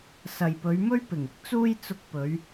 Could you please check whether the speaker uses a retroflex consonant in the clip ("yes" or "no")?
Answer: no